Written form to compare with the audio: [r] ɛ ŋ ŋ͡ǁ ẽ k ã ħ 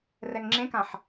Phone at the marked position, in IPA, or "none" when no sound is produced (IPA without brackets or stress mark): r